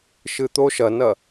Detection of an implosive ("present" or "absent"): absent